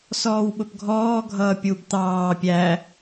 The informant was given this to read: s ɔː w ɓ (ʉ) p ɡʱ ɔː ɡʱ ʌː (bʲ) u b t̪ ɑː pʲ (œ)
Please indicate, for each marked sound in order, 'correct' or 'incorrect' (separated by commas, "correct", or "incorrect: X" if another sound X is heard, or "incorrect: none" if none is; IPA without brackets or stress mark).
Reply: incorrect: ʊ, incorrect: pʲ, incorrect: æ